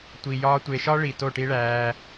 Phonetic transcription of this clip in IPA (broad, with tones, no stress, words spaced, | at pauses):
tʷi˨jɒː˧ tʷe˨ʃɒ˦ɭi˨ to˦˨ʈi˦ɭæː˧